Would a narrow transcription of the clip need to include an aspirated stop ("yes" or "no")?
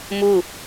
no